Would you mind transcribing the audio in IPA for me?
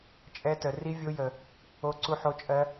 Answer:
t͡ʃʼ ɛ˦˥ t ə˧ r i˦˥ vʲ o˦˥ j ə˧ | o˦˥ ǀ u˦˥ ħ o˦˥ t͡ʃʼ ɜ˦˥

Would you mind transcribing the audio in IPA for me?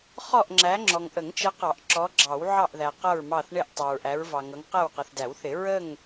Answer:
χ ɔ˦˨ ʔ ŋ͡ǁ æ˨˦ ŋ͡ǁ ɔ˨ ŋ ʔ ə˨˩˦ ŋ t͡ʃ ə˨˦ q ɑ˨˩˦ ʔ ǁ ɔ˨˦ ɡ͡ǁ ɑ˨˩˦ w ʕ ɑ˦˨ ʔ ð æ˨ q ʌ˦˨ ɹ m ɑ˦˨ θ ɳ ɪ˦˨ ʔ tˤ ɑ˨ ɹ ʔ æ˨˦ ɹ v ɑ˨ ŋ ʌ˨˦ ŋ q æ˦˨ w q ʌ˨ θ d æ˨˩˦ w θ ɪ˨˩˦ ɹ ə˦˨ ŋ

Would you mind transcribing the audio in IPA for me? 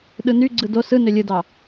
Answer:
ɗ ɯ n y ɡ͡ǀ ɯ d o s ɯ n ø lʲ ɯ d ɑ

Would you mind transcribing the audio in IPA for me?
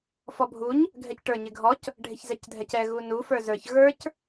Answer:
f ɔ bʱ u ɲ | ɡʱ ɛ c ʈ ə˞ ɲ ɪ ɡʱ ɔ c | ɖʱ ɪ ç z ɛ c dʱ ɛ c ɛ ɣ u n u f ə˞ z ə˞ ç ɣ ə˞ c

